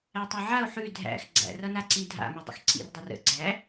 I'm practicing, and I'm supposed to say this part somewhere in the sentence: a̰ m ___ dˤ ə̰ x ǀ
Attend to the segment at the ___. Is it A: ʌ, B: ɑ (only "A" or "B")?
A